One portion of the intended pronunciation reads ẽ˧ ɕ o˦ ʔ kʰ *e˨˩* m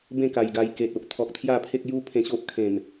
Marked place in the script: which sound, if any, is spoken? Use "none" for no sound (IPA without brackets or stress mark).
ẽ˨˩